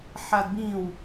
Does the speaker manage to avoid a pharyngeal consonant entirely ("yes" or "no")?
no